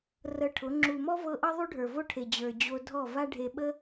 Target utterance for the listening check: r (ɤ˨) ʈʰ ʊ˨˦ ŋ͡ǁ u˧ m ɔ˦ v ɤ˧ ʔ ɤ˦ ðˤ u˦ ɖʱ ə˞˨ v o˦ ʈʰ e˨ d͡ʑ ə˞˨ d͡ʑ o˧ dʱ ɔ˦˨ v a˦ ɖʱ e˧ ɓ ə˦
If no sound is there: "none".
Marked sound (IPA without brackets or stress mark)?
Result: ɤ˧